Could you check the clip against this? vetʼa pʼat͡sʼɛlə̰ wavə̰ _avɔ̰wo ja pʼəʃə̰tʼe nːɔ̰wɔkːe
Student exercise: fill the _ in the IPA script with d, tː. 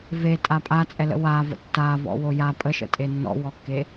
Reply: tː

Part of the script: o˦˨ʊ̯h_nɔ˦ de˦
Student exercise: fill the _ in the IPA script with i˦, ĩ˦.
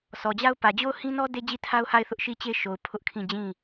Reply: ĩ˦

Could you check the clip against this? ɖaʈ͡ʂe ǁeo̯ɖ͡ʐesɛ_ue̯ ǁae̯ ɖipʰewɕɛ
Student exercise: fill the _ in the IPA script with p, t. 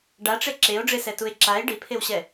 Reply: t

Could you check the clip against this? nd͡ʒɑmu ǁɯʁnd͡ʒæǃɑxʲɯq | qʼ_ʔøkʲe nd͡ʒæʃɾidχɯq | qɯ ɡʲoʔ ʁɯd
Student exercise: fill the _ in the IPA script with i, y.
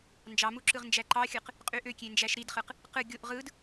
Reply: y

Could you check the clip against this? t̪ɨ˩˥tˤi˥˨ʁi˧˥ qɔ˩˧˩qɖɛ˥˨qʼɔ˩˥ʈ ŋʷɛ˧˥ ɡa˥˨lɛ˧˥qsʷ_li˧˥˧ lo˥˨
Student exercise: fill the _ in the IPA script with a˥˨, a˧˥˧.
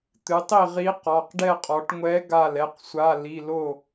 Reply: a˧˥˧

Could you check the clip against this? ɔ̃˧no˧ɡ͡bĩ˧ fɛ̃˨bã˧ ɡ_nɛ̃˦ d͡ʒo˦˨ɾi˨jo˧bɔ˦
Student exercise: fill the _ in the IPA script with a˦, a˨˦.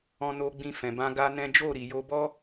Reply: a˦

